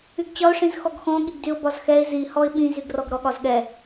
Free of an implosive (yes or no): no